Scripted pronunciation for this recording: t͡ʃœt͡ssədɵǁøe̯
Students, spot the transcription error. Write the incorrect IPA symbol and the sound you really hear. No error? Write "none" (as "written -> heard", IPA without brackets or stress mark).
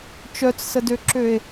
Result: ɵ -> ø